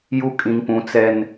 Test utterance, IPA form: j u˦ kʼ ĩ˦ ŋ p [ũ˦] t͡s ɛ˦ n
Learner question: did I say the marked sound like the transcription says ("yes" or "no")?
yes